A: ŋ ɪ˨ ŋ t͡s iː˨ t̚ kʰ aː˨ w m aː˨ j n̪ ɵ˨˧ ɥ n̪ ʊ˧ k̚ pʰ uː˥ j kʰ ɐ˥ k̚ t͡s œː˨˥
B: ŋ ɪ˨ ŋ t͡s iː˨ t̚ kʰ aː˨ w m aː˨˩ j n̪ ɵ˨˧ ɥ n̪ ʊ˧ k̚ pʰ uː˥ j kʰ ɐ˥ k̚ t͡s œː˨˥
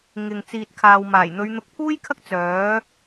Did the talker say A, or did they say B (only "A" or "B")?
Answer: B